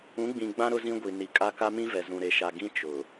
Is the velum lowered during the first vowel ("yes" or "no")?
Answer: yes